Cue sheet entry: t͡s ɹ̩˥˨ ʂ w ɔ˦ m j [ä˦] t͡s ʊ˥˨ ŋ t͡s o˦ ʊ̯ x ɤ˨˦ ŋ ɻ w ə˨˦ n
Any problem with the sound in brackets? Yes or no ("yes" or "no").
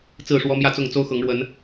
yes